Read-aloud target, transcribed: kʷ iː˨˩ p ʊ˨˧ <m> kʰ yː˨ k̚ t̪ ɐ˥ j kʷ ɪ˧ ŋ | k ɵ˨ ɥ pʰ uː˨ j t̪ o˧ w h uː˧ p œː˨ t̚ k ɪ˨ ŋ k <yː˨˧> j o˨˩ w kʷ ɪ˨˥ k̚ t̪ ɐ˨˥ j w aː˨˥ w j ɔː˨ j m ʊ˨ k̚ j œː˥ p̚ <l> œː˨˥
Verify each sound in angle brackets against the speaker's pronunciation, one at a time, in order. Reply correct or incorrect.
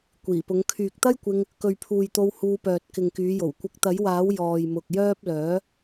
incorrect: ŋ, correct, correct

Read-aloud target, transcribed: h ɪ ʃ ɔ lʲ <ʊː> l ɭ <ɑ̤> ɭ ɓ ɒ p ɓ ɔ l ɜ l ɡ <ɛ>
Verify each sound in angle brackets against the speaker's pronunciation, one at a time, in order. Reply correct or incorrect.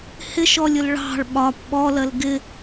incorrect: ʊ, correct, incorrect: ɪ

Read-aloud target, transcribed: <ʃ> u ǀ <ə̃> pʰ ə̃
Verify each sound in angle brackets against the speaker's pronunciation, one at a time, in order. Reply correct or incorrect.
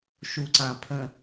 correct, incorrect: ã

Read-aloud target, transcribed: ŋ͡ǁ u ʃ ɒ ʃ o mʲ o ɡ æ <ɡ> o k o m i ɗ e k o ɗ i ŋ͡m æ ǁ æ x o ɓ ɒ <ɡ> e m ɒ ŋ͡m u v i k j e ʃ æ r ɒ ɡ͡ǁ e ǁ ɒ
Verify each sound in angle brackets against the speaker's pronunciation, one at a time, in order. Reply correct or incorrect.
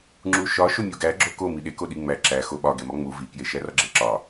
incorrect: ɡ͡ǁ, correct

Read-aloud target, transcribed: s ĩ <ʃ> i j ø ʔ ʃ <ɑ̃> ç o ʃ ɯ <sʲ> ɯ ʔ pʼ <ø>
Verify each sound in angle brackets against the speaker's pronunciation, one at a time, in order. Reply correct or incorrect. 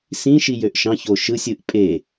correct, correct, correct, incorrect: e

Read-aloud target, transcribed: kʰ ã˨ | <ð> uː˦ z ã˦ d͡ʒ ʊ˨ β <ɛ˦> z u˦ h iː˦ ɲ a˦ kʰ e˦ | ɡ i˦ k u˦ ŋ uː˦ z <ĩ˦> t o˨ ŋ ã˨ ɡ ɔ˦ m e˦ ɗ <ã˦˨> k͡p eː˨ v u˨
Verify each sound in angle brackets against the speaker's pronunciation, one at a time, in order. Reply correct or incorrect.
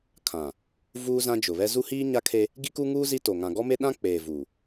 incorrect: v, correct, incorrect: i˦, incorrect: ã˦

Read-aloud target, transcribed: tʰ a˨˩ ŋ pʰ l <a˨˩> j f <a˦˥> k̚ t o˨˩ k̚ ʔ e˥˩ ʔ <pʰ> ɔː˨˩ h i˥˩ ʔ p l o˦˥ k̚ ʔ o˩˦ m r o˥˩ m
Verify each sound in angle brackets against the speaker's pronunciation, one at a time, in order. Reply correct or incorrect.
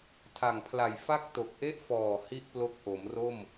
correct, incorrect: a˥˩, incorrect: f

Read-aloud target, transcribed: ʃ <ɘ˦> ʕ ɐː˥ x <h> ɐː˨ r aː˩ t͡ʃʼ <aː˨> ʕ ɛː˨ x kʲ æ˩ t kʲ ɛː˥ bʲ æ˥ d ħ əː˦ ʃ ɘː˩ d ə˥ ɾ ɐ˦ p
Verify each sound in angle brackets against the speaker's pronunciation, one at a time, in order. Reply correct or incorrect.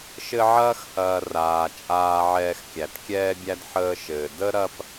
correct, correct, correct

